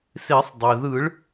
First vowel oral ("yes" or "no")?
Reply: yes